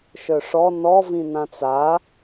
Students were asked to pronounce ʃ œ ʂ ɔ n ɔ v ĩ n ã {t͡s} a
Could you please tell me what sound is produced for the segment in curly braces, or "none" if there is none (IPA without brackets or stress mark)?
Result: t͡s